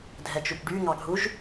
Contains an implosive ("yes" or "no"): no